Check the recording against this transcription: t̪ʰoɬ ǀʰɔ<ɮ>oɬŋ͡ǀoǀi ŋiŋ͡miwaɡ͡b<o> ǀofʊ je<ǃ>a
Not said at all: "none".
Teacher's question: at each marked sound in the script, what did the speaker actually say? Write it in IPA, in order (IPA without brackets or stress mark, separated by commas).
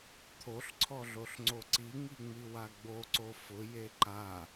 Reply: ɮ, o, ǃ